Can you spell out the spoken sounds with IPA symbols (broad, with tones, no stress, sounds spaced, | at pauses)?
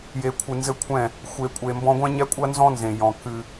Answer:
j e˨ kʷʰ ɨ˨ n z ɘ˦ kʷʰ ɛ̃˦˨ | xʷ e˨ kʷʼ e˨ m b ɔ̃˦ ɡʷ ɛ̃˦ ɲ ɛ˦ kʷʼ ɐ˦ n z ɔ̃˦ n z ẽ˨ j ɔ̃˨ k ɨ˦